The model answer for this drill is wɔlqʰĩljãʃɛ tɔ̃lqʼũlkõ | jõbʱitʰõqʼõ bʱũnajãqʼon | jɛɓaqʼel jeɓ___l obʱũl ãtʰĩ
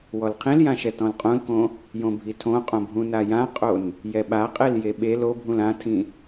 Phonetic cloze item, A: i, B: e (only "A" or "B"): B